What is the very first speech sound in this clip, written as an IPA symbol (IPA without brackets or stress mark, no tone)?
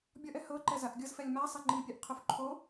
bʲ